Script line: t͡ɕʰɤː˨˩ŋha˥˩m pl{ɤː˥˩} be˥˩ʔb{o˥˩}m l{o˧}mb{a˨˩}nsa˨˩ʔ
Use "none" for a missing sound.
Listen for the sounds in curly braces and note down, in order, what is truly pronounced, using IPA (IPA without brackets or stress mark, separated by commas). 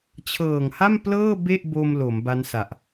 ɤː˥˩, o˧, o˩˦, a˦˥